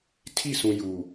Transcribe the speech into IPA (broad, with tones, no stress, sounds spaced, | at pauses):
tʰ i˦˨ s ũ˨ j u˨